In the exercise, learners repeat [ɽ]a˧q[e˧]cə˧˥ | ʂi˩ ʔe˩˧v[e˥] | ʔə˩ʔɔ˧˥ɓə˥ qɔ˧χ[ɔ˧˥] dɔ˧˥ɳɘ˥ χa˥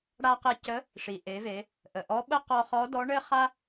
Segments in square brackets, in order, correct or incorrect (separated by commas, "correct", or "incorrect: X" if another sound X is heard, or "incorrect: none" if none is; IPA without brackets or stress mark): correct, correct, incorrect: e˩˧, correct